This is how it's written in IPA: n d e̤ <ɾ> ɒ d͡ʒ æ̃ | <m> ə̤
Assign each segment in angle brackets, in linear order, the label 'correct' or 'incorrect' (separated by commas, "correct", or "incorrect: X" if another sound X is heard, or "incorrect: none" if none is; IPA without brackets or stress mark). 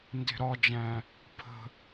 correct, incorrect: pʰ